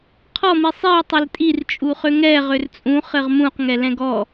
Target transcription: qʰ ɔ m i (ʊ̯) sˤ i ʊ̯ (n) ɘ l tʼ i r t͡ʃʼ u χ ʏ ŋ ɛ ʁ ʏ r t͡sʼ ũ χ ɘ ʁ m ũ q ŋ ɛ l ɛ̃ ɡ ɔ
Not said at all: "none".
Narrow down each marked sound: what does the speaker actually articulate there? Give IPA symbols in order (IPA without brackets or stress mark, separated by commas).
none, tˤ